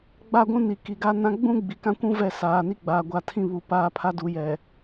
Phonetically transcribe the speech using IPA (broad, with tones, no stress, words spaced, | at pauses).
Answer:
ɡ͡ba˦˨ɡʷũ˦ni˨ ki˨ɡa˦nã˦ ɡ͡bũ˦ ɡ͡bi˨kã˦kʷũ˦ vɛ˦˨saː˨ni˦ ɡ͡baː˨ɡʷa˨tʰĩ˦ βu˨ paː˦pʰa˦du˨˦ jɛ˨